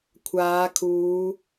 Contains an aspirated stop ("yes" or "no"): yes